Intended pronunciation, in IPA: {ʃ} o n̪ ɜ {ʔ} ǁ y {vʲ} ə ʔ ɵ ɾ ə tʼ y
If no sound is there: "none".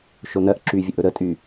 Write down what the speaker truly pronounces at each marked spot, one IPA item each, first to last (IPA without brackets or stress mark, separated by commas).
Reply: ʃ, ʔ, vʲ